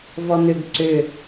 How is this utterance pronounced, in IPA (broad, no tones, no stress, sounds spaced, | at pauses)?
v ɔ n̪ ʏ ɡ ǀ ʏ